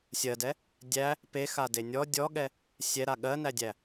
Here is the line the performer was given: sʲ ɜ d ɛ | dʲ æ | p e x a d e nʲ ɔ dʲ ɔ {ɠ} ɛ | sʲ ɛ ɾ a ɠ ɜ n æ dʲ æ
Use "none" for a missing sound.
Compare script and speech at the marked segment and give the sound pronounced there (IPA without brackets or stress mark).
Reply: ɠ